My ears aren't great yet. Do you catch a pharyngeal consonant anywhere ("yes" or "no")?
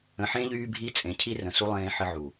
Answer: yes